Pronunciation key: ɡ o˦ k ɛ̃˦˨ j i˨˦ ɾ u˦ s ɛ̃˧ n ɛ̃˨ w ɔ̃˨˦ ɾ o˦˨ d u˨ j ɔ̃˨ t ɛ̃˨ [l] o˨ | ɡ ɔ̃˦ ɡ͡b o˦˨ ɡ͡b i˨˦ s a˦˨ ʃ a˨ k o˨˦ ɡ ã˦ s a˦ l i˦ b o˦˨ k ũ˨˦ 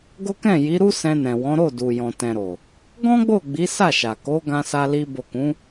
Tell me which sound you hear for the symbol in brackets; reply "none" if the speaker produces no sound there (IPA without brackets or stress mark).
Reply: ɾ